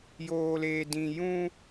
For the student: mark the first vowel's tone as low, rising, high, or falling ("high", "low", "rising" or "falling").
low